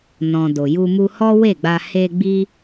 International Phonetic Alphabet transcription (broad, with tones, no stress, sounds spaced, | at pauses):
n ɔ̃˨ d o˨ j u˧ m u˧ h ɔ˦ w e˦˨ ɡ͡b a˧ h e˧ ɡ͡b i˦